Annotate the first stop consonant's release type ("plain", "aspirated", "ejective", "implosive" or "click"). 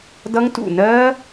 plain